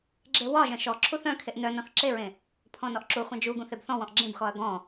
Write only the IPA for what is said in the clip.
ɡ͡ǁ e w ɒ ʒ œ̃ ʃ ɔ ǁʰ u θ œ̃ kʰ e ʔ n œ n ɔ̃ θ ǁ e ɹ ẽ | pʰ ɔ̃ n ɔ ʔ ǁ u χʷ œ̃ d͡ʒ u ɡ ũ θ e b θ ɔ̃ w ɔ̃ ʔ ɡ͡ǁ ẽ b x ɔ ɐ̯ ɡ ɔ̃

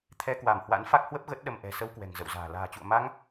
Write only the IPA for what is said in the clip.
t̪ʰ ɛ˧ k w a˧˩ m h w a̰˧˥ n f a˦˥ k̚ h w ə˦˥ p̚ ɣ ə˦˥ t̚ ɗ ə˧ m ʔ ɛ̤˨˩ s ə˧ w k w ɛ̤˨˩ ŋ z ə̰˧˨ w z a̤ː˨˩ l a̤ː˨˩ t͡ɕ ṵ˧˨ ə̯ m a˧ ŋ

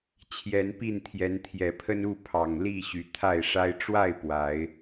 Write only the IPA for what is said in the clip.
t͡ɕʰ j ɛ˨˦ n p i˥˨ n t̪ʰ j ɛ˨˦ n t̪ʰ j ɛ˨˩ pʰ ə˦ n u˥˨ pʰ ɑ˨˩ ŋ l i˥˨ ɕ y˨˩ t̪ʰ a˥˨ ɪ̯ ʂ a˦ ɪ̯ ʈ͡ʂ w a˥˨ ɪ̯ p w a˨˦ ɪ̯

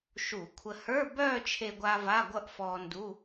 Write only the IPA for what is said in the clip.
ʃ u˧˩˧ kʷʰ ə˧ h ə˞˧˥˧ b œː˥˧ t͡ʃʰ e˧ ɡʷ a˧ v a˧˥˧ ɡʷ ʌ˥˧ ʔ f ɔː˧ n d u˧˥˧

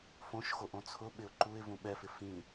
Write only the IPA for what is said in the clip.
f õ ʃ x o ʔ õ t͡sʰ ʊ ɓ ɪ ʊ̯ ǃ u ɪ̯ v ũ ɓ ɛ f ɪ f ĩ

